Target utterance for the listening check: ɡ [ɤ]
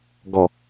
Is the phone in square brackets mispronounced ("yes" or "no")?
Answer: yes